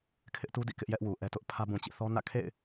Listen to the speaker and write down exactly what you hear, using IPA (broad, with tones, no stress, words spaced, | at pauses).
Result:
kʰɪ˦ʔtu˦dḭ˦˨ kɪ˦ʔjɛ˦ʔwu˨ ʔɛ˦tʊ˦ʔ pʰä˦ bũ˨t͡ɕḭ˦˨θɔ˦nä̰˦˨ kʰḛ˦˨ɪ̯